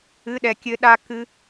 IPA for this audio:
ɨ˧˥˧ ɗ ɛ˧ kʲ ɘ˦˥ ɗ a˦˥ k ɨ˦˥

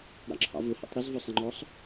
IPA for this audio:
ɾ ɑ̰ ǁʰ ɑ̰ v ʊ h ḭ tˤ ɾ ɪ z v ʊ sˤ ɪ ŋ͡ǃ ɔ sˤ

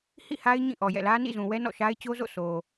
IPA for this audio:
h ḭ˦˨ h a˦ ɪ̯ ɲ ĩ˦˨ ʔ ɔ˨ j ɛ̰˦˨ l ä˦ n ḭ˦˨ z ũ˨ w ɛ˦ n ɔ̰˦˨ ʃ a˦ ɪ̯ t͡ɕ o˦ z o̰˦˨ sʰ o˨

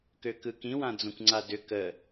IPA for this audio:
k ø k ɯ k ĩ w ã d͡z õ kʷ ŋ͡ǀ a d ʏ k ə

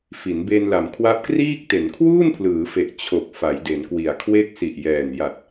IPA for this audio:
f i˩˦ n b e˧ n l a˩˦ m kʰ w a˦˥ p̚ k r iː˥˩ k̚ t e˩˦ n kʰ w uː˥˩ n pʰ l ɯː˩˦ f e˨˩ ʔ t͡ɕʰ o˨˩ k̚ f a˩˦ j d e˩˦ n k w i˨˩ a̯ kʰ w e˦˥ k̚ s i˨˩ ʔ j ɛː˨˩ n j a˨˩ t̚

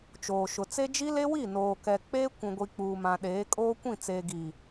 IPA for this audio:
t͡ʃ oː˨ ʃ ʊ˨ t͡s e˦ d͡ʒ i˦ l e˦ w i˦˨ n oː˨ k ɛ˨ k͡p eː˦ kʷ ũ˨ ɡʷ i˨ k͡p uː˨ m ã˨ ɗ eː˨˦ kʼ oː˦ kʷ ĩ˦˨ t͡s eː˨ ɡ i˨

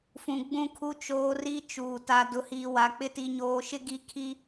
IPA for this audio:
f ũ˨ ɡ͡b ũ˦˨ kʰ u˦ t͡ʃ oː˦ r i˦ t͡ʃ uː˨ t a˨ d ʊ˨˦ h iː˨ w a˨ k͡p ɪ˦ t i˨ ɲ oː˨ ʃ ɪ˦ ɡ i˦ kʰ i˦

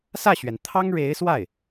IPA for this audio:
s ä˥˩ ɕ ɥ ɛ˩ n t̪ʰ ɑ˥ ŋ ɻ e˧˥ ɪ̯ s w a˥˩ ɪ̯

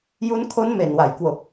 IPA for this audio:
j u˦˥ n kʰ o˦˥ n m e˨˩ n w a˨˩ j k w o˨˩ k̚

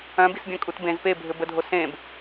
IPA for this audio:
œ̃ b i s bʲ œ̃ kʼ u t b ẽ z p e bʱ ɘ b ə dʱ o s ẽ b

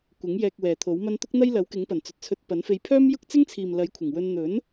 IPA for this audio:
kʷ ɪ˨˥ ŋ j ɛː˧ k̚ w ɛː˨ t̪ʰ o˨˥ w m ɐ˥ n t̪ ʊ˥ k̚ n̪ ɐ˥ j l ɐ˨˥ w k ɪ˨˥ ŋ p ɐ˨˩ n t͡s ɵ˨ t̚ t͡sʰ ɵ˧ t̚ p ɐ˨˥ n f e˧ j pʰ œː˥ m j ʊ˥ k̚ t͡s ɪ˥ ŋ t͡sʰ iː˨ m l ɐ˨˥ j kʷʰ ɪ˨˩ ŋ w ɵ˧ n n̪ ɵ˨˥ n

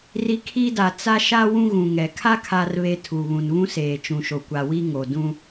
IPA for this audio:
r i˨ kʰ i˦ d a˨ t͡s a˦ ʃ a˦ w ũ˦ ɣ ũ˨ ŋ ɛ˨ kʰ a˦ kʰ a˨ r β e˨ tʰ u˨ β ũ˨ n β ũ˦ s eː˨ t͡ʃ ũ˨ ʃ o˨ kʷ a˨ w i˦ ŋ o˨ d ũ˦

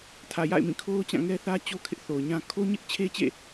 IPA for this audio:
tʰ ä˨ j a̰˦˨ ɪ̯ m ĩ˦˨ kʰ o˦ ʊ̯ t͡ɕ ã˦˨ ŋ ɛ˦ θ ä˦ t͡ɕ o˦ kʰ ɪ˦ ʔ θ o˨ ʊ̯ ɲ ã˦ kʰ o˦ ɲ ɪ˦ ʔ t͡ɕʰ e˦ t͡ɕ ḛ˦˨

